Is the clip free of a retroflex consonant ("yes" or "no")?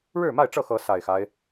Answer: no